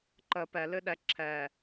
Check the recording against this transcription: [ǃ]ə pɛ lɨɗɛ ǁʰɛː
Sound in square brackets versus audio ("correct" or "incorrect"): correct